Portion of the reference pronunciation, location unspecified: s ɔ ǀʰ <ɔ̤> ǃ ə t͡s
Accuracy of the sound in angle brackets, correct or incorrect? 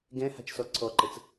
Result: incorrect: ɔ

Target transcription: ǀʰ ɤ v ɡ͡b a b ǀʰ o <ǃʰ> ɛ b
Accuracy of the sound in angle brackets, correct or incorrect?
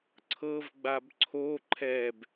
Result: correct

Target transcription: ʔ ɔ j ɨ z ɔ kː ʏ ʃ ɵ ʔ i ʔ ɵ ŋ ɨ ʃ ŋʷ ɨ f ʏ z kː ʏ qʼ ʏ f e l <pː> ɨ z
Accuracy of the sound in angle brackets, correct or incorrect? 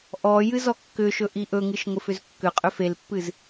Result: correct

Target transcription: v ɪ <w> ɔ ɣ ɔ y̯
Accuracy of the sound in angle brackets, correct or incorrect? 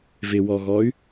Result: correct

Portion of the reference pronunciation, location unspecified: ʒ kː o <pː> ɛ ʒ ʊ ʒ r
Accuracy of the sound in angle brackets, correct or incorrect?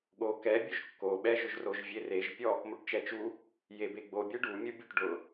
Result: incorrect: ɓ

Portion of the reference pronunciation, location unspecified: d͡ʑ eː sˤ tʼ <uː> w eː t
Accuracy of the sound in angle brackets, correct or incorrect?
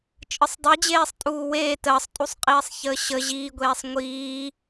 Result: correct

